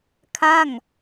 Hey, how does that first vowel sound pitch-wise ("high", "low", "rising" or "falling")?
falling